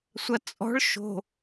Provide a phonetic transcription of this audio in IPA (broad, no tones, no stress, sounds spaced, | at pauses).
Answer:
sʷ ɐ t͡sʼ ɔ̤ ɭ ʃ o̤